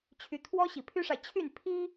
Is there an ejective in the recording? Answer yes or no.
no